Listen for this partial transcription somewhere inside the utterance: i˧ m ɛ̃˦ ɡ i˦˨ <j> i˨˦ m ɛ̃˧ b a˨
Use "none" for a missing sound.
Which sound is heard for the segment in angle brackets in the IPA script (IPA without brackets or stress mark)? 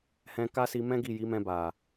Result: j